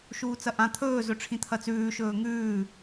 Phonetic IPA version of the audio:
ʃ uː t͡s ɐ ʔ ã t̪ʰ ɵː z ɵ ʈ͡ʂʰ ĩ t̪ʰ ɐ t͡s ʉː ʃ ɵː ŋ ʉː

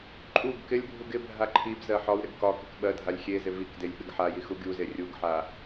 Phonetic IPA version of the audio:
ǃʼ u ɡ k ɪ lʲ bʱ u ɡ ɪ bʱ a ǃʰ i b z ɜ ħ ɒ w ɾ ɪ ɡ k ɒ k ɪ k ɓ ɜ dʱ a lʲ xʲ e z ɪ v i k d e lʲ ɓ ɪ ɡ ħ a j i x u ɡʲ u z e rʲ u ɡ ħ a

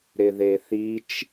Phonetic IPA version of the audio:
ɾ ɪ ð e θ i t͡ʃ

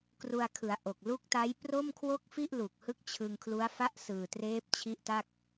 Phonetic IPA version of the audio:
k r u˧ a̯ kʰ ɯ˩˦ a̯ ʔ o˨˩ k̚ l u˦˥ k̚ t a˦˥ j p r o˥˩ m kʰ w o˥˩ k̚ f i˥˩ ʔ l u˨˩ k̚ h ɯ˦˥ k̚ t͡ɕʰ ɯ˧ ŋ kʰ l u˦˥ a̯ f a˥˩ ʔ s ɯː˨˩ t r eː˦˥ p̚ t͡ɕʰ i˦˥ ʔ t a˥˩ k̚

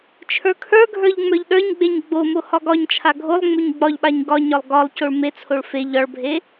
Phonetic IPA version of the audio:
t͡ʃʰ ə˞ kʰ ə˞ ɡʱ ə˞ ʎ ŋ͡m ə˞ ʎ ɗ ə˞ ɲ ɡ͡b e ɲ ɡ͡b o m o h ɒ ɡ ɒ ɲ t͡ʃʰ a ɡʱ o lˠ ŋ͡m o ɲ ɡ͡b ɒ ʎ ɓ a ɲ ɡ ɒ ɲ ɒ lˠ ɡ ɒ lˠ c o ɭ m e t͡sʰ o ɭ f e ʎ ɒ ɭ bʱ e

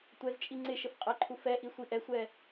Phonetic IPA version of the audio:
tʷ ɛ z t͡ʃʼ i ŋ͡ǀ ɪ ʃ ə f qʼ ɛ ǃʰ u f ɛ ʔ i sʷ i ʔ ɛ sʷ ɛ

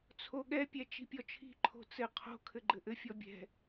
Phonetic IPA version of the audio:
t͡sʰ o ɠ ɛ pʲ ɛ t͡ʃ i̤ pʲ ɔ t͡ʃʰ i̤ ǃʰ o̤ t͡s ɘ qʰ o̤ kʰ ɘ ɡ͡ǃ ɘ ʔ ɘ fʲ ɔ bʲ ɛ̤

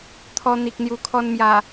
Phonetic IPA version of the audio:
t̪ʰ ɔ˧ n̪ i˨ k̚ n̪ j u˨˩ kʰ ɔ˧ n m j a˨˩

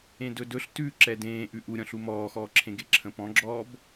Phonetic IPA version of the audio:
ẽ d ɵ d ɵ ɬ t ʉ ǁ ɛ d ẽː ʔ ʉ ʔ u ɾʲ ɔ̃ ɬ u m ɔː x ɔː ǁʰ ẽ ɡ e ǁʰ ə̃ p ɔ̃ ɡ͡ǁ ɔː b

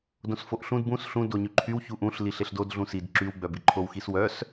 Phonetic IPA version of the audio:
d õ s f o ʔ ɬ ũ d b ũ s ɬ ũ d o ɲ y ǃʰ y w ç u ʔ ũ ɬ l i ɬ e ɬ d o d ɮ ũ s i d ǁ y w ɡ͡b œ b i ǃʰ o w x i s w œ s

